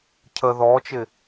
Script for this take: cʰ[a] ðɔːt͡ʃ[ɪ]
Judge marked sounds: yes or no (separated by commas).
no, yes